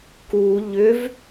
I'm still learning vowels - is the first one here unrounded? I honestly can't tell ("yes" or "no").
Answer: no